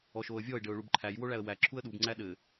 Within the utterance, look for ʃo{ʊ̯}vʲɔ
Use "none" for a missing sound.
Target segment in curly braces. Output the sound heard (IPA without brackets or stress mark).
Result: ə̯